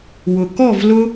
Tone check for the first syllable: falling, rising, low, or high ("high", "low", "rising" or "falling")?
low